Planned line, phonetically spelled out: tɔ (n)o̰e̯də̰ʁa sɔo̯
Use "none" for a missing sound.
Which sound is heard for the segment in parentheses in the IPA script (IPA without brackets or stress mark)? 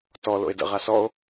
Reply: l